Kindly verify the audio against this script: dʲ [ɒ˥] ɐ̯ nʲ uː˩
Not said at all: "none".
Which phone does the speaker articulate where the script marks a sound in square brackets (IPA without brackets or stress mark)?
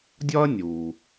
ɒ˥